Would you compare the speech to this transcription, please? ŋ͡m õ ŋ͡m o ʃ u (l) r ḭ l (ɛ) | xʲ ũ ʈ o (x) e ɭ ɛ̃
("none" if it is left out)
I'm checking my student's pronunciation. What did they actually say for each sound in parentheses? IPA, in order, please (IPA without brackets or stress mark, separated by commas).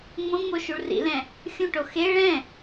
ɭ, ɛ̃, x